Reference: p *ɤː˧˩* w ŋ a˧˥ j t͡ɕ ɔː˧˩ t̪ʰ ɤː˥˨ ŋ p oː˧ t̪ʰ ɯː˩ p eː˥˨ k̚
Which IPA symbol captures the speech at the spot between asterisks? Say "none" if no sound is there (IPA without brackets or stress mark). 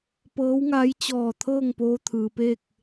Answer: ɤː˧˥